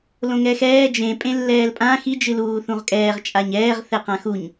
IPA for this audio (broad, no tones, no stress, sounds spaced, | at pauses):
l õ ŋ ɛ x ɛː d͡ʒ ẽ pʼ ẽ lː ɛː l pʼ ã x i d͡ʒ ɨ l uː θ ũ ʁ kʼ ɛː ʁ t͡ʃʼ a ɲ ɛː ʁ θ ɛ q ã x u ɲ